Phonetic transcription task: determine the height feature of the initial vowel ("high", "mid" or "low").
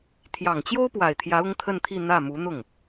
low